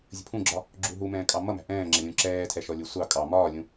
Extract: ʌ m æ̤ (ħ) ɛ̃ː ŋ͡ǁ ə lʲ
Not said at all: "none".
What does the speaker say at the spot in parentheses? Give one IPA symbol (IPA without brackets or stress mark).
ʔ